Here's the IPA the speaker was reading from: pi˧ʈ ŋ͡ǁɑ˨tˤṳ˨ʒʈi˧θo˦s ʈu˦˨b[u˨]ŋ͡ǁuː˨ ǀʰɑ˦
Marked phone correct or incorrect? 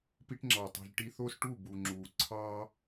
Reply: correct